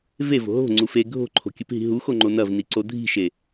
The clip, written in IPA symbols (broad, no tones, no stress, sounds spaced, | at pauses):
v e v o̤ ɦ o̤ ŋ͡ǀ u f e ɡʱ o̤ ǃʰ o̤ kʲ ɨ p ɦ i̤ ɦ u x o ŋ͡ǃ o n ɐ v n i ǀ o dʱ i̤ ʃ e